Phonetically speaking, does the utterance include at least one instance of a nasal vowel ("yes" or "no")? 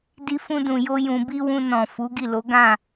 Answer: yes